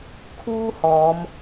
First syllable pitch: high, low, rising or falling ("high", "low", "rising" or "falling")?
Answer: high